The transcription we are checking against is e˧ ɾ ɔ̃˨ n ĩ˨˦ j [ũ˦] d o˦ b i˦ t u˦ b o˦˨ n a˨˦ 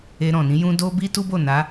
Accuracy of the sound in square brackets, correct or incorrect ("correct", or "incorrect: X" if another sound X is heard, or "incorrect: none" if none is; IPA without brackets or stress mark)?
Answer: correct